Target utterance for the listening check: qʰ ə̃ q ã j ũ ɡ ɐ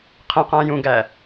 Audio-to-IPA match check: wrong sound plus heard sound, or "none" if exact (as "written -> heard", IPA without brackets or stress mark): ɐ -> æ